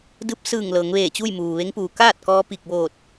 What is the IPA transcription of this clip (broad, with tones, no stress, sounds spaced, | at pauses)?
d ɯː˧˥ p̚ s ɯː˧˩ ŋ l ɤː˩˧ ŋ ʋ eː˧˩ t͡ɕ uː˥˨ j m uː˩ ʋ e˧˥ ŋ p uː˩ k aː˥˨ t̚ k ɔː˧ p i˧˩ k̚ ʋ oː˧˩ t̚